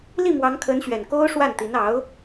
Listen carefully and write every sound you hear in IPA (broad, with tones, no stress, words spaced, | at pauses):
li˥˩mwɑ˧˥ŋkʰə˧˥nɕɥɛ˨˩n ko˥ʊ̯ʂwa˥˩nt̪i˧˥n ɑ˧˥ʊ̯